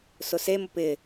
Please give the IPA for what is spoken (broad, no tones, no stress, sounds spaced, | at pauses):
s ʊ s e m ʊ p ɪ